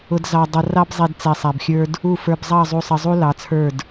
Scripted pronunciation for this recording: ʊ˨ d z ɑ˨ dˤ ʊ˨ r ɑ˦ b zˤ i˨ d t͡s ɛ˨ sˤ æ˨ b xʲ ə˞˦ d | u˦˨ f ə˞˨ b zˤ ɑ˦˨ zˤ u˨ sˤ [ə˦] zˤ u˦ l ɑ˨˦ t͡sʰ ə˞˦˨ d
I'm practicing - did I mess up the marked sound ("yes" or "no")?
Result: yes